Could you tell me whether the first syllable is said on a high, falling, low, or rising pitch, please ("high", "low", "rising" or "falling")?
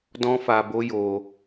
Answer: high